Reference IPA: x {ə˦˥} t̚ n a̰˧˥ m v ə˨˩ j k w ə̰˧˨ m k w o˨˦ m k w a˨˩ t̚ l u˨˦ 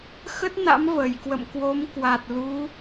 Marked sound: correct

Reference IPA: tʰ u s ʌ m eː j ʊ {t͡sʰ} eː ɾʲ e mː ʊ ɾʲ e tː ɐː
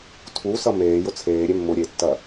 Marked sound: correct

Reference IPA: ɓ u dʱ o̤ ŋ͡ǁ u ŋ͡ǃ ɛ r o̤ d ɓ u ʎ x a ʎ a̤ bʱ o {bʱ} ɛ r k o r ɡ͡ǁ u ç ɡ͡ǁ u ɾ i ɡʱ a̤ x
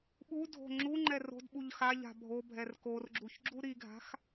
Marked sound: correct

